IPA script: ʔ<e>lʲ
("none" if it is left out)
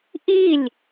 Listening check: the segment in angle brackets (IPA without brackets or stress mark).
i